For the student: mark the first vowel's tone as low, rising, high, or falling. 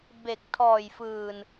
low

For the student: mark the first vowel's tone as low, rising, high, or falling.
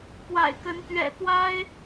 low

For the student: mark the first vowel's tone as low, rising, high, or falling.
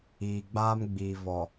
low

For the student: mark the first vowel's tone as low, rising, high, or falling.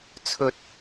low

